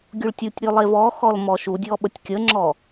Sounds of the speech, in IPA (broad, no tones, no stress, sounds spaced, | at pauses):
ɡʲ u ɭ tʲ u tʲ ɾʲ ʉ lˠ e v ɔ x ɔ l m ɔ ʃ u dʲ ɔ ɓ ə tʲ kʲ ə ŋ͡ǁ ɔ